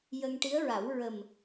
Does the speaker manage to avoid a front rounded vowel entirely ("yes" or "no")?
yes